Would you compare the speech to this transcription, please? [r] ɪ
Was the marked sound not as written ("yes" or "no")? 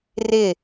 no